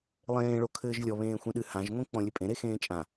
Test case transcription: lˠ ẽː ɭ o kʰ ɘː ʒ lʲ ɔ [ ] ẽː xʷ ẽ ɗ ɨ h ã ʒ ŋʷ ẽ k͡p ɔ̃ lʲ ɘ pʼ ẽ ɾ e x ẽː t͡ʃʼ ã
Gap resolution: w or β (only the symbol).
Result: β